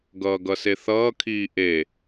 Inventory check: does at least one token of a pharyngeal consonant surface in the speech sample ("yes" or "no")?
no